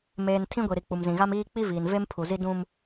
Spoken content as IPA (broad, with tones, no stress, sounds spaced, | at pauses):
m eː˨ n tʰ ĩ˦ ɡʷ i˨ ɾ i˨ k͡p u˨ m z ĩ˨ ɣ a˦ m iː˦ k͡p i˦ v iː˨ n v e˦ m pʰ u˨ z i˦ d ũ˦ m